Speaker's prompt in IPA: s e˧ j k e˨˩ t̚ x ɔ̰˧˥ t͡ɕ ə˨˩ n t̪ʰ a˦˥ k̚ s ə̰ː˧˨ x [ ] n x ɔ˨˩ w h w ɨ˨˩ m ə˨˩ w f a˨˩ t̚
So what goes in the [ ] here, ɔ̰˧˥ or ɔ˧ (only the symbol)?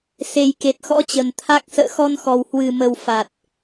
ɔ˧